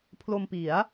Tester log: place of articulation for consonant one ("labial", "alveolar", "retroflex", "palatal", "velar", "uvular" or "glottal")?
labial